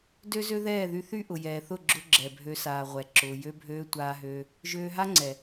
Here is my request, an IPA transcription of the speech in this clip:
d ø˦ z ø˦ ð ɛː˦˨ ð y˧ θ y˦ ʔ ʊ˨ j ɛː˨ θ ʊ˦˨ ɡ͡ǁ ʊ˧ ɡ͡ǁ ɛ˨ bʱ ø˧ s aː˨ ʁʷ ɛ˨ ǁ ʊː˨ j ø˧ bʱ øː˧ tʷ aː˧ ɦ øː˧ | ʒ øː˧ ɦ a˦ ŋ͡ǀ ɛ˨

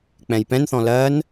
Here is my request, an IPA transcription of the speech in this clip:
k͡p ɛ̃ j p ɛ̃ n θ ɔ̃ l ɜ n

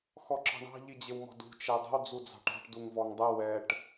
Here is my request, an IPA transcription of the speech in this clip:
x ɔ ǁ ɑ̤ ɳ ɑ̤ ʎ i d͡ʑ ɪ w m ɔ̤ d ṳ t͡ʃ ɛ dˤ ə̤ w d͡z u d͡z ɑ̤ ʈ ɑ̤ ʈ d u ŋ v ɔ ŋ dˤ ə w ɛ ʈ

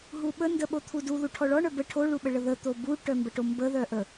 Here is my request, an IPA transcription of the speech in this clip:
ɦ u ɓ ə n d ə ɓ o t̪ʰ u d u ð u ʈʰ ɔ ɭ ɔ ɳ œ b ə ʈʰ o ɭ u ɓ ə ɭ ə ð ə t̪ o b u ʈ œ m b ə ʈ o m b ə ð œ ʔ ə

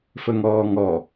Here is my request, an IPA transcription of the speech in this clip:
f ə ŋ ɔː ŋ ɔ

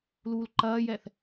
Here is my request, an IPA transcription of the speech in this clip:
l uː l ǃ ɐː j ɛ θ

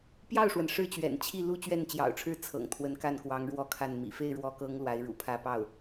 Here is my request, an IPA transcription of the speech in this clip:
p j ɑ˥˩ ʊ̯ ʂ w ə˩ n ʂ ɻ̩˥˩ t͡ɕ ɥ ɛ̰˨˩ n t͡ɕʰ i˥˩ l u˥ t͡ɕ ɥ ɛ˥˩ n t͡ɕ j ɑ̰˨˩ ʊ̯ ʈ͡ʂʰ ɻ̩˥ t͡sʰ ɤ̰˨˩ ŋ t̪ʰ w ə˧˥ n k a˥˩ n k w ɑ˧˥ ŋ ɻ w ɔ˥˧ kʰ a˥˩ n m ḭ˨˩ f e˥˩ ɪ̯ ɻ w ɔ˧˥ k ɤ˧˥ ŋ l w a˧˥ ɪ̯ ɻ ṵ˨˩ pʰ ä˥˧ p ɑ˥˩ ʊ̯

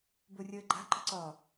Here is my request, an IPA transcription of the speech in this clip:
b o rʲ əː ɡ͡ǃ a̤ ǃ ə̤ ǀ ɒ

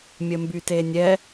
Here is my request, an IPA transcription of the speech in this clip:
mʲ ə m b y t e nʲ ɛ

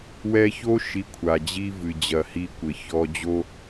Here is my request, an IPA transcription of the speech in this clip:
w ɛ˧ ç o˦ ʃ i˧ kʷʰ a˨ d͡ʑ i˦ v ɨ˨ d͡ʑ ɐ˨ h i˧ kʷ ɘ˨ ç ɔ˧ d͡ʑ o˧

